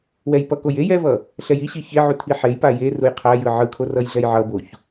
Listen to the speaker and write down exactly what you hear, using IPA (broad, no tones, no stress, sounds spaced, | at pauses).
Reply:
w ɛ j p ʌ k o j e j ɛ v ʌ | ɬ ɛ j i ɕ i ç e ʕ u tʰ i ħ e j p a j e r u j qʰ a j ɯ ʕ ɯ kʰ o r ʌ j ɮ ɛ j ʕ ʌ b o ç